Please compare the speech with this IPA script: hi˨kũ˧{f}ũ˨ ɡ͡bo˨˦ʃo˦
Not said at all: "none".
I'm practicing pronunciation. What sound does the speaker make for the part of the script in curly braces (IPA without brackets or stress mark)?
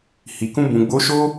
b